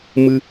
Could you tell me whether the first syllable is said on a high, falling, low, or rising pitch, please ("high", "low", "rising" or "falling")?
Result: high